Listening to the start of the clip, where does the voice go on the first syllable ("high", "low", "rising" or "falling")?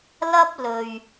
high